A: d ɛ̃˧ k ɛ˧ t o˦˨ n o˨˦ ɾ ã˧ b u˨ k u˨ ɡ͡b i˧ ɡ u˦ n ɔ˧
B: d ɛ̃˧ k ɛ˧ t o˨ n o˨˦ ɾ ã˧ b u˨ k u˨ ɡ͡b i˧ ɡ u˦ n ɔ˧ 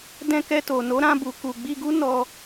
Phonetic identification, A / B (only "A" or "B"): B